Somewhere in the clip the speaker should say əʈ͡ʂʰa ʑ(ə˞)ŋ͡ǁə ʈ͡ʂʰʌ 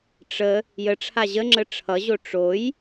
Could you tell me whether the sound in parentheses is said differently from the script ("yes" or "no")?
yes